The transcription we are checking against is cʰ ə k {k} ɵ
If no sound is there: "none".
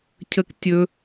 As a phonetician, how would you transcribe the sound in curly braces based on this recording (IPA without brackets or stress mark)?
tʲ